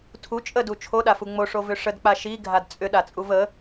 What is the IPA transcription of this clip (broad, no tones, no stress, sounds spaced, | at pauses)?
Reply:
tʰ u t͡ʃʼ ə d u t͡ʃʰ o ɗ a f u ŋ͡m o ʂ o v ʏ ʂ ə d k͡p a ʃ i ɡʱ a d t͡sʼ ʏ ɗ a t͡sʼ u v ə